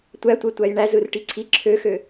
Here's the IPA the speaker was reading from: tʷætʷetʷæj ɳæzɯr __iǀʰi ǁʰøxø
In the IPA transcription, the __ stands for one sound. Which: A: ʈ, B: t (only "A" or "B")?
A